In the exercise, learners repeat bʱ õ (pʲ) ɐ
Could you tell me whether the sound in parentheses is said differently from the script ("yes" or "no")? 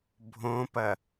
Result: yes